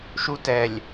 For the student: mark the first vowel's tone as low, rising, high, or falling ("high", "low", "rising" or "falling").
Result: high